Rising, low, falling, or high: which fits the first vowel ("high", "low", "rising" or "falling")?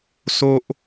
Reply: high